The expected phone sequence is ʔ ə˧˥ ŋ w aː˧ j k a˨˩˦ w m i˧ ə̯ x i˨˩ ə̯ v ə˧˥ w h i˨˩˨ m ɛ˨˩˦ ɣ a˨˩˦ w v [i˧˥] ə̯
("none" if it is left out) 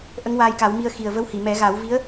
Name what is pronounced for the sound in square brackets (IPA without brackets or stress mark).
i˧˥